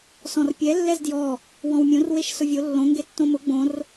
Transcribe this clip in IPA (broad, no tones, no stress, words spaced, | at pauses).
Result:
sɔ̃rpʲɛ lːɛzdjɔ | wɔ̃wmʲõr weʃsʊvʲo lːõ ŋɡetːõmʊ ɡ͡bõr